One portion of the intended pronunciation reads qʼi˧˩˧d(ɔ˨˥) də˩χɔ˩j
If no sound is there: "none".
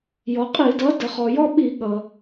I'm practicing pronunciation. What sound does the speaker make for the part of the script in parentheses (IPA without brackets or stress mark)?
ʌ˨˥